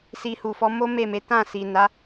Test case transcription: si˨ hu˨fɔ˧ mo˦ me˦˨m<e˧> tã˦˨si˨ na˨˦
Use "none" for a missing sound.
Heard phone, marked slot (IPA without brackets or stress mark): e˨˦